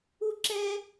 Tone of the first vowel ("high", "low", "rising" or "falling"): high